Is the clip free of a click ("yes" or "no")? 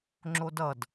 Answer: no